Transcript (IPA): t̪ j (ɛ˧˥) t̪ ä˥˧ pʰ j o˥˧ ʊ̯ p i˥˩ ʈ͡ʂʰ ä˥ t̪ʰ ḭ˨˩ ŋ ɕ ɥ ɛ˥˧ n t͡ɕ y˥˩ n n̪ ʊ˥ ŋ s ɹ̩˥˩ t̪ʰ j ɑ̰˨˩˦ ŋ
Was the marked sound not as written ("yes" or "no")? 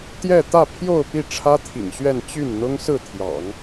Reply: yes